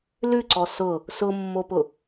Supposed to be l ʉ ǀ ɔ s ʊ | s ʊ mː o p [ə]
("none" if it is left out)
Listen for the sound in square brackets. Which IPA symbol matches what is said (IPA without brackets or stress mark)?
ʊ